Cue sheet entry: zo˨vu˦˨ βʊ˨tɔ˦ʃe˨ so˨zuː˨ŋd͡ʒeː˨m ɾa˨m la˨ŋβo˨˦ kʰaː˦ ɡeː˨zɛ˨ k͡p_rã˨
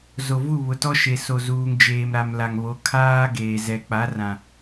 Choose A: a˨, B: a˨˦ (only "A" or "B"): B